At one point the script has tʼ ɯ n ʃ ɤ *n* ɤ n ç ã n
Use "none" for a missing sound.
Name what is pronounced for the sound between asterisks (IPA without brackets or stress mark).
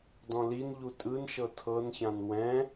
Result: tʰ